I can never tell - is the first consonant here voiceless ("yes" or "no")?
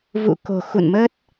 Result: no